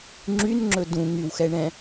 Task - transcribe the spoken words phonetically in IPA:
ŋ͡ǁ y n ŋ͡ǁ ɵ d ũ ŋ y w x ɛ ɳ ɛ̃

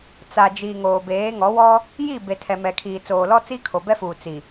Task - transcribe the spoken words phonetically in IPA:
t͡s a˨ d͡ʒ iː˨ ŋ oː˨ b eː˨˦ ŋ ɔ˨˦ w ɔ˦ | j i˦˨ b e˨ tʰ ɛ˨ m ɛ˨ kʰ iː˨ t͡s oː˨ l ɔ˦ t͡s i˦ kʰ o˨ b ɛ˦ f uː˨ t͡s i˨

